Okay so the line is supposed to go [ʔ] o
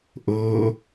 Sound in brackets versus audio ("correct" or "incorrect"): correct